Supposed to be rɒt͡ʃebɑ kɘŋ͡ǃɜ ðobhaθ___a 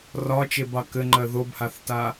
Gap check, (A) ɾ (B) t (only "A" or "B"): B